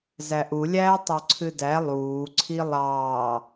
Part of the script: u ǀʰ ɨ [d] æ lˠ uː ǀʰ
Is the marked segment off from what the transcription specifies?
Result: no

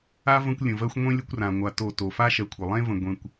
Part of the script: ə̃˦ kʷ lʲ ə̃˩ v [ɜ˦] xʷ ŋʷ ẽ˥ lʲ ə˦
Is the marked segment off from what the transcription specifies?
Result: no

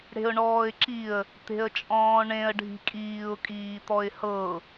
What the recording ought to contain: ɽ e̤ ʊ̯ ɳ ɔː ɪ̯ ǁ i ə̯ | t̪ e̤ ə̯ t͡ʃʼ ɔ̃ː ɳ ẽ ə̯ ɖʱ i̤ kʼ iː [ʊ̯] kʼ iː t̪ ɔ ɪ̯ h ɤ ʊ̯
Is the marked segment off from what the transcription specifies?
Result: no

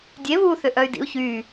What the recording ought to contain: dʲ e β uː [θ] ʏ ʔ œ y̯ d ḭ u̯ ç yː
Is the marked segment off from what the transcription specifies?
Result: no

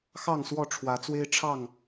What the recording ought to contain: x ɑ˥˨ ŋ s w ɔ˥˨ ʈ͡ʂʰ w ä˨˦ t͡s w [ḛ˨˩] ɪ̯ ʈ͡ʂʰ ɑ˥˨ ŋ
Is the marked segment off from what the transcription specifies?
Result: yes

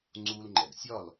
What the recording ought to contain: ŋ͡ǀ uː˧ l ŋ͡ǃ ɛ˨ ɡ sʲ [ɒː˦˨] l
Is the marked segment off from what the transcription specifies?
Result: no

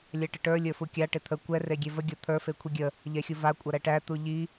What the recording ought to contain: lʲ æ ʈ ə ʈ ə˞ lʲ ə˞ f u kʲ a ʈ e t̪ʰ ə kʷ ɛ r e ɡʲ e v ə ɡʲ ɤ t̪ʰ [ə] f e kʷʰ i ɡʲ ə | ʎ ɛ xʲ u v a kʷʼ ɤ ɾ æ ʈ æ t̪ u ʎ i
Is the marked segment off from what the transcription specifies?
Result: yes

